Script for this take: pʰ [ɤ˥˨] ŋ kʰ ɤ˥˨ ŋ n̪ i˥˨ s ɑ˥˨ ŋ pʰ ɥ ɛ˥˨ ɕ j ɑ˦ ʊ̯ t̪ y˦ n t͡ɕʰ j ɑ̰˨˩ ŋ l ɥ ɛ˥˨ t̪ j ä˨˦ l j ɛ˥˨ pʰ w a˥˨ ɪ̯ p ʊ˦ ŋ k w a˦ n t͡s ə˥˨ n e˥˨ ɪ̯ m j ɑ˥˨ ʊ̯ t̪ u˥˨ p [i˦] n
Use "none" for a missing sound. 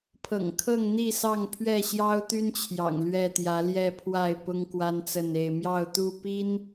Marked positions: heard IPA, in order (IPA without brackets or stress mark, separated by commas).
ɤ̰˨˩, i˦